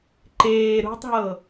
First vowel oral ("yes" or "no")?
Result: yes